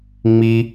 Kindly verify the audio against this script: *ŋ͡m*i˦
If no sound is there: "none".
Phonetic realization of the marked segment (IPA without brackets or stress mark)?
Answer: ŋ͡m